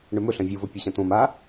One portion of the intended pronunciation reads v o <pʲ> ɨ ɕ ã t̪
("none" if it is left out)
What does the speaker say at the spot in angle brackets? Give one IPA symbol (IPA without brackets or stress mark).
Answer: pʲ